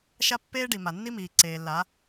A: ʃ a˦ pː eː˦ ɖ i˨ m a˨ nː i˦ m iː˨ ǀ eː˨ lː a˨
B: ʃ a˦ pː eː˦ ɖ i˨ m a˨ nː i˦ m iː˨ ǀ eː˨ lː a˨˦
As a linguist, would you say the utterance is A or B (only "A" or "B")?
B